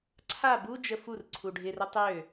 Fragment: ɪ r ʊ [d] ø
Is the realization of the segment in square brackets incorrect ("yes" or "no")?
yes